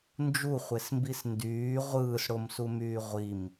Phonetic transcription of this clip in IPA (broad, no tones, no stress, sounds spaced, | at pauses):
n d͡ʒ u χʷ e s m b i s n d yː ʁʷ ɯː s ɽ o m s u m yː ʁʷ i m